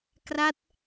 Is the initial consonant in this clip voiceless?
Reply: yes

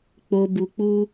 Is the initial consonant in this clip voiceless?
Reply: yes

